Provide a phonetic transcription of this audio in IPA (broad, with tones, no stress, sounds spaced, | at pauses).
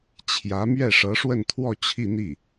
t͡ɕʰ j ä˧˥ m ɥ ɛ˥˩ ʂ ɤ˧˥ ʂ w ə˥˧ n t̪ʰ w ɔ˥˧ t͡ɕʰ i˥˧ n̪ i˥˩